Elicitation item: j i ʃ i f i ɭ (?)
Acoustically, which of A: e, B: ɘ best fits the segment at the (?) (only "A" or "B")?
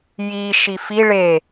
A